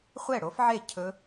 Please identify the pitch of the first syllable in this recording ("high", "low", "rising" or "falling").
falling